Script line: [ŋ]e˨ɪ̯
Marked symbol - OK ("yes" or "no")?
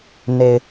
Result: no